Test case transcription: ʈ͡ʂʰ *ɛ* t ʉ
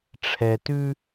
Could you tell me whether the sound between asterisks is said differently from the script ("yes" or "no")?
no